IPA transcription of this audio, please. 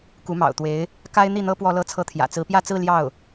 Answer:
k u˧˥ m ɑ̰˨˩ ʊ̯ t̪ w e˧˥ ɪ̯ | k a˥ ɪ̯ n̪ i˥˩ n̪ ɤ˥ p w ɔ˥ l ɤ˥ t͡sʰ ɤ˥ t̪ʰ j ä̰˨˩ t͡s ɹ̩˧˥ p j ä˥˧ t͡s ɹ̩˥˧ l j ɑ˥˩ ʊ̯

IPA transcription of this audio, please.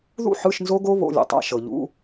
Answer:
ð ṵ˥˧ ħ ɯ˧˥˧ ʃ n z o˦˥ ɡ o˦˥ β o̰˧˥˧ lʲ ṵ˨ tˤ a̰˧˥˧ ʃ ɤ˨ ʎ ṵ˧˥˧

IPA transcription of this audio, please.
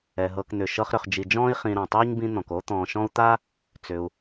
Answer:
ɛ˩ ɦ ɤ˨ k n̪ ʏ˩ ʃ ɤ˦ χ ɾ ʏ˨ χ d͡ʒ i˨ d͡ʒ ɔ̃ː˥ i̯ χ ĩ˨ ɾ ã˩ tˤ iː˥ ɲ b ĩ˦ n̪ ɔ̃˩ k oː˥ t̪ ɔ̃ː˨ ʃ ɔ̃˥ u̯ t̪ a˥ | t͡s ʏ˩ u̯

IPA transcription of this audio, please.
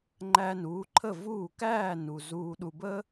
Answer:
ŋ͡ǃ æ˧ n uː˩˥ ǃʰ ə˥˩ v uː˥˩ k æː˥˩ n u˩ z uː˧ ɗ u˧ b ə˥

